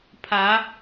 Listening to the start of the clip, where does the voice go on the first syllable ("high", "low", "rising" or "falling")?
rising